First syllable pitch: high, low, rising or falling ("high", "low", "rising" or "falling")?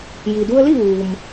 low